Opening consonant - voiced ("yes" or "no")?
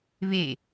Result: yes